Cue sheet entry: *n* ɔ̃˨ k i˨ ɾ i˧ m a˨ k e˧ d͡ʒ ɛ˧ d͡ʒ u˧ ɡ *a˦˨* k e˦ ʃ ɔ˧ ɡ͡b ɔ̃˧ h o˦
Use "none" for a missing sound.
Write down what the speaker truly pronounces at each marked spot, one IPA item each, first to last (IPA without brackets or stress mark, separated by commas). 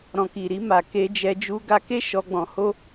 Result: ɾ, a˧